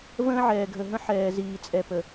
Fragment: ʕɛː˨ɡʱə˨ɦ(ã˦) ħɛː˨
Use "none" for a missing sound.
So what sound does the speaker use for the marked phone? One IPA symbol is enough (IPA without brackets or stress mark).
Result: ə̃˦